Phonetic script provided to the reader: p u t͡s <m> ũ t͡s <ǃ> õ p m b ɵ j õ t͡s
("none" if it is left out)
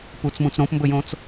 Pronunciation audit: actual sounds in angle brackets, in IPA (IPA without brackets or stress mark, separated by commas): m, ɾ